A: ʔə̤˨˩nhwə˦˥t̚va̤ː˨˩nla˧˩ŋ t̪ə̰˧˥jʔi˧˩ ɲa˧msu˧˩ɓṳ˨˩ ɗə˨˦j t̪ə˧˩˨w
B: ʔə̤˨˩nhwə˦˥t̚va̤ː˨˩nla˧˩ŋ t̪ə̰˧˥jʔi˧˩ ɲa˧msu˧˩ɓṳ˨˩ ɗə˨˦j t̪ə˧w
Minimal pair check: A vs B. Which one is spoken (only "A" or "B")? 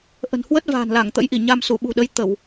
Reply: A